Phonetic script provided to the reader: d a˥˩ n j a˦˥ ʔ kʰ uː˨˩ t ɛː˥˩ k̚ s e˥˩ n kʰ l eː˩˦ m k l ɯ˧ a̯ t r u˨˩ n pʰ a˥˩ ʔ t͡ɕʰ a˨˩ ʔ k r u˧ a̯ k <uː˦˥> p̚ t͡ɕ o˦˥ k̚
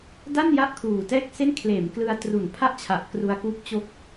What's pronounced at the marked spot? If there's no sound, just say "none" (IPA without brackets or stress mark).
uː˦˥